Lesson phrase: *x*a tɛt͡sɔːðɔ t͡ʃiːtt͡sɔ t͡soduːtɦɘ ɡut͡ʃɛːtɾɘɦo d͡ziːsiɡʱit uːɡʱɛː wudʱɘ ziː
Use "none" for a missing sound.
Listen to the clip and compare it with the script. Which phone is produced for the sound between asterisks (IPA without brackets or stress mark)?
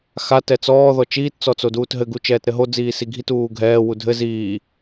x